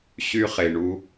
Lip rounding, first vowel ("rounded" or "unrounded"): rounded